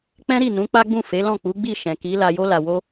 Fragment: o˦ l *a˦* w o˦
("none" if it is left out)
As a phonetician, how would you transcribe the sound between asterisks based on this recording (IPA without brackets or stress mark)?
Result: a˧